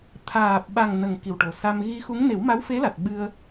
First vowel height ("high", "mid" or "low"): low